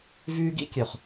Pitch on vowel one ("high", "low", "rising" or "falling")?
high